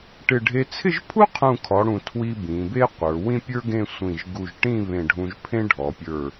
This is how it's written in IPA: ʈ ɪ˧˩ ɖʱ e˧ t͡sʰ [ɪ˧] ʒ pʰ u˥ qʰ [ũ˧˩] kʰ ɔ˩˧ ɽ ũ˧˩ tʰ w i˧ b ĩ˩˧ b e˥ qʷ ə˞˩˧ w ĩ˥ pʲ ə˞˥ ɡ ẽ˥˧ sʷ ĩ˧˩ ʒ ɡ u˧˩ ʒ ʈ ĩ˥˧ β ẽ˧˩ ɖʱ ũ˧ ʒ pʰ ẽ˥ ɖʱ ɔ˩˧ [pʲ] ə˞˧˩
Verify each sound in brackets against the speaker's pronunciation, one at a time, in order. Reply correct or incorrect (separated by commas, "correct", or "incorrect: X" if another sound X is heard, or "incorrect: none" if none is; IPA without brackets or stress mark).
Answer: incorrect: ɪ˥˧, correct, correct